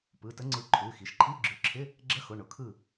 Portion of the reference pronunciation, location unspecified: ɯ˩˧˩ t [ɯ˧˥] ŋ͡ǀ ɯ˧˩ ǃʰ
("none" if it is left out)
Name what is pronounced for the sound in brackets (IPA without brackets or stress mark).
ə˧˥